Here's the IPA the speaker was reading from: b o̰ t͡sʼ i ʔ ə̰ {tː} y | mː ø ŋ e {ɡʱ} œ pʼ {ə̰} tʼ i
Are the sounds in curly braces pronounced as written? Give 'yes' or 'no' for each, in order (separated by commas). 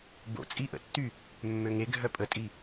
yes, yes, no